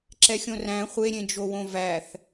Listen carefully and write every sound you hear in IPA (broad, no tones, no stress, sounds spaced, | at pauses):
ǁ ɛ xʲ õ r æ̃ χʷ e ɾʲ ẽ d͡ʒ o w õ v æ θ